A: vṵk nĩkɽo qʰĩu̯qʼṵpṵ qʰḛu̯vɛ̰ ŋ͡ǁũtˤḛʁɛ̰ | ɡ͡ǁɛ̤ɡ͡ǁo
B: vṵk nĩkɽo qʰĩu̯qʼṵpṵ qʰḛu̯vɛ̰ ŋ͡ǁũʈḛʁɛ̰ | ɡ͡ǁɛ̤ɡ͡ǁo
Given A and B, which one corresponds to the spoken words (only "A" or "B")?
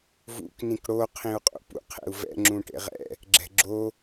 B